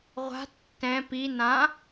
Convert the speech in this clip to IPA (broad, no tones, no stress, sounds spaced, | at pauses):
ʁʷ a̤ tː ɛ̃ p i n ã